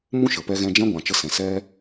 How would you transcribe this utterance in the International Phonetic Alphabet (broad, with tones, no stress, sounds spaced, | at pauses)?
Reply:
m ũ˦ ʃ ə˨ p ɛ˧ ɣ ɛ̃˧ d͡ʒ ɛ̃˦ ɡʷ ã˨ t͡ʃ ə˧ s ɛ̃˨ s ɛ˦